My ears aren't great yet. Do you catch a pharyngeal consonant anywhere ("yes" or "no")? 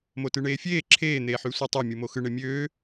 yes